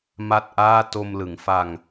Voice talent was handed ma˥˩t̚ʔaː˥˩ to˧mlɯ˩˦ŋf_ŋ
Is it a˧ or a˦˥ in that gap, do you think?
a˧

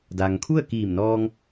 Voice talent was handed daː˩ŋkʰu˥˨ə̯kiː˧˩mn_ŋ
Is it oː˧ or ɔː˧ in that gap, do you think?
ɔː˧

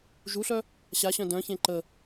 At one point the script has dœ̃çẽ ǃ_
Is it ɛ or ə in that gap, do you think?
ə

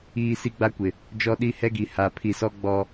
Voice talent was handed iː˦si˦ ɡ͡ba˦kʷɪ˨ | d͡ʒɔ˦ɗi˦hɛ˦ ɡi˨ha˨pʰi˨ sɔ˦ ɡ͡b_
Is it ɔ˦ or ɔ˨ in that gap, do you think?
ɔ˦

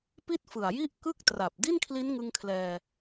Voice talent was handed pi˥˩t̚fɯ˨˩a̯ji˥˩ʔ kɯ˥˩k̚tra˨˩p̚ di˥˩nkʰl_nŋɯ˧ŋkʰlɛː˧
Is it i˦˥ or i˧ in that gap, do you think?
i˦˥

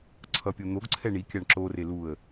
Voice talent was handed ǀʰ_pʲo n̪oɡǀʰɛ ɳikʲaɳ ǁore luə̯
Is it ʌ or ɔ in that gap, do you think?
ʌ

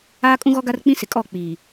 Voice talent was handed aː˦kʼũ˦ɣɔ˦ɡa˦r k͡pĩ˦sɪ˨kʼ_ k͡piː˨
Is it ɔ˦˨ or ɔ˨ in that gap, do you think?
ɔ˦˨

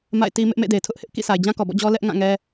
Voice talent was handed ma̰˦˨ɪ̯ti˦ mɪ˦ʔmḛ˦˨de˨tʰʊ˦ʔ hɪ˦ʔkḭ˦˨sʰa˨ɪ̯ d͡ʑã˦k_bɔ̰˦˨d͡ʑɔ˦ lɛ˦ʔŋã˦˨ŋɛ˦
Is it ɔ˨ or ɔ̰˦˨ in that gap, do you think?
ɔ˨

